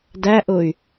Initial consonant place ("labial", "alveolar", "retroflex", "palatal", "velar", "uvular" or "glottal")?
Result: alveolar